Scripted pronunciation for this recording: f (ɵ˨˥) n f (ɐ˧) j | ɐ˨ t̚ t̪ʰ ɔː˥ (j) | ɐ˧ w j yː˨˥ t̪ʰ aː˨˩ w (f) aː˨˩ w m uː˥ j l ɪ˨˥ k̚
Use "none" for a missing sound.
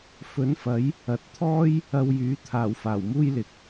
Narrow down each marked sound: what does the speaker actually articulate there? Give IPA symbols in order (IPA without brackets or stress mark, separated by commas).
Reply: ɵ˨˥, ɐ˨˥, j, f